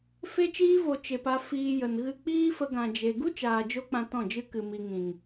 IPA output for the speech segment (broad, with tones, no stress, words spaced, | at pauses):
fe˧t͡ʃiː˧vo˨ t͡ʃe˧pa˦ fiː˧jə˨n ɣɨ˦ k͡piː˦fə˧ɡã˨ d͡ʒe˨ ɡu˦t͡ʃaː˨d͡ʒo˧k͡pã˨ tɔ̃˦˨d͡ʒɨ˦kɨ˨ mi˨ŋĩ˨ŋ